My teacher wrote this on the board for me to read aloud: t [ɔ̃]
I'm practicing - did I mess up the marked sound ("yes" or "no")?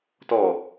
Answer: yes